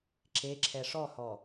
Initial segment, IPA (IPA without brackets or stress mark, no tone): ǁ